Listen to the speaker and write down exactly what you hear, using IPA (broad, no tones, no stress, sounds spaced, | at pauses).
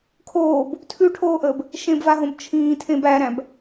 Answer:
kʰ oː b | tʰ ʉ ʈʰ oː ʔ əː b | ʃ ẽ b v a ɦ õ b t͡ʃʰ ĩː tʰ ẽ b æ ɾ æ̃ b